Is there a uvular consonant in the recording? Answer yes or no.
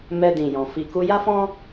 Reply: no